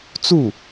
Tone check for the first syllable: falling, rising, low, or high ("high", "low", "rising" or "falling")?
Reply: falling